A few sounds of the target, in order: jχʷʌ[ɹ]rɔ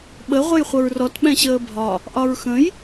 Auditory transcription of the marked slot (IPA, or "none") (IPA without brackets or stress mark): ɹ